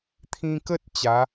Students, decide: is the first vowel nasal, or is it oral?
nasal